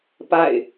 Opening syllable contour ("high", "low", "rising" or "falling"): falling